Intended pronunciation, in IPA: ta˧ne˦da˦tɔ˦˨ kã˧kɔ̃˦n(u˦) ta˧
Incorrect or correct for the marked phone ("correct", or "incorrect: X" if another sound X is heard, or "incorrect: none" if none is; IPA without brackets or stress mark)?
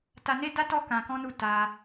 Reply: incorrect: u˦˨